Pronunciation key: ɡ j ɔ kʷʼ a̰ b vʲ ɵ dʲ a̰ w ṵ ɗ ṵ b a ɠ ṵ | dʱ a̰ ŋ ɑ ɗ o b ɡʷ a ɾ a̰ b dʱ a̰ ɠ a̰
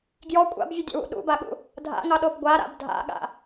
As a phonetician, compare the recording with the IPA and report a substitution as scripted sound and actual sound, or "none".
none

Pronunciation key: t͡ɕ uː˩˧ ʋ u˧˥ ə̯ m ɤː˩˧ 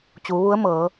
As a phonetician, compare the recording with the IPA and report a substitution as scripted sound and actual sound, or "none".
none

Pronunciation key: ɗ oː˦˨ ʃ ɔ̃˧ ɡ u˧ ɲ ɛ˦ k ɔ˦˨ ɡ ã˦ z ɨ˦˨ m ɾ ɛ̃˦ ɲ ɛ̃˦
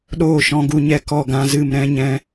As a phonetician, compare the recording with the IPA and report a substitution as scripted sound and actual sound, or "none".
none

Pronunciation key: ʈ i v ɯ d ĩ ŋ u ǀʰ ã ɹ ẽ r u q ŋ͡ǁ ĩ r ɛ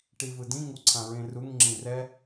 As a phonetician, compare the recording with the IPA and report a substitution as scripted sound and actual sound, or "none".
q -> ŋ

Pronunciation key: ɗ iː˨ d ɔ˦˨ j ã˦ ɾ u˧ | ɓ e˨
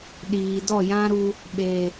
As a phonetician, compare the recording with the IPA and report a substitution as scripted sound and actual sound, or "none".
none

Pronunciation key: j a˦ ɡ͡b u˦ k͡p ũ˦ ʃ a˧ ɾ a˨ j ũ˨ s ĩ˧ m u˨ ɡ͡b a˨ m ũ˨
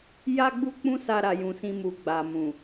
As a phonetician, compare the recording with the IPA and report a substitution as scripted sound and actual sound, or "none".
ʃ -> s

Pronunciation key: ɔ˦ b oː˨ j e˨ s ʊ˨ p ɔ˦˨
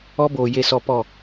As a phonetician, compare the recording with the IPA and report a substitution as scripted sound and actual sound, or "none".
ʊ˨ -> ɔ˨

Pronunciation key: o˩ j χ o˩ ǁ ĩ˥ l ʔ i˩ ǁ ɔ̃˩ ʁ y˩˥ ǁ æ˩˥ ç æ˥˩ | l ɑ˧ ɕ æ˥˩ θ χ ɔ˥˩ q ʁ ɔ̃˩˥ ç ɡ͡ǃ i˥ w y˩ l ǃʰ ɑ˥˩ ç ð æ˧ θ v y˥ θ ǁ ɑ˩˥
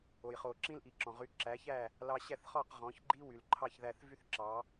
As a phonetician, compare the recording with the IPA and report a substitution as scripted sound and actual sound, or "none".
none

